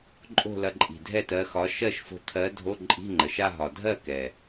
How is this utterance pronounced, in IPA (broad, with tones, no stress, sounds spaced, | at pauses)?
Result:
ǃʼ o̤˥˧ l ɐ˧ ǃʼ i̤˨˩ dʱ ɛ˥˩ t ɜ˧ x ɒ˨˥ ʃ ɜ˥˧ ʃ f o̤˧ t̪ʰ ɜ˨˥ dʱ o˧˥˧ ǃʼ i̤˧˥˧ ŋ͡ǃ ə˨˩ ʃ a˥˧ ɦ ɒ˨˩ dʱ ɜ˥˩ k ɛ˨˩